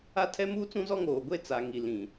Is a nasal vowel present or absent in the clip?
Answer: present